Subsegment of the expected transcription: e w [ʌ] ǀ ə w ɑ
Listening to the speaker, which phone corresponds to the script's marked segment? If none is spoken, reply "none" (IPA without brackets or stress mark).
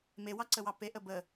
ɑ